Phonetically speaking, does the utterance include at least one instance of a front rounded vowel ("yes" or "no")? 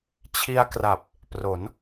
no